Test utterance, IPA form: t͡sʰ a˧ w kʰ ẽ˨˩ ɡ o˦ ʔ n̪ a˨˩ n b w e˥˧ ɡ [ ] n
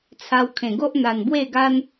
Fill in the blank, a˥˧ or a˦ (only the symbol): a˦